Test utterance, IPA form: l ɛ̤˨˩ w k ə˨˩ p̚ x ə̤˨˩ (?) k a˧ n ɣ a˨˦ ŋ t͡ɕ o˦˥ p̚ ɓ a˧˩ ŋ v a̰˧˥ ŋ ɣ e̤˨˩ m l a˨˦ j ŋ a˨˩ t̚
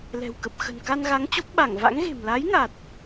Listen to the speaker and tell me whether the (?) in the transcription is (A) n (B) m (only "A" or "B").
A